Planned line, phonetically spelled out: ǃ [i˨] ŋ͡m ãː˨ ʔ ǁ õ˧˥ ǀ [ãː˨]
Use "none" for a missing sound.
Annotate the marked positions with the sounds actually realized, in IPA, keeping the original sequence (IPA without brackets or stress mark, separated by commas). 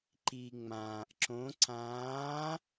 i˨, ãː˧˥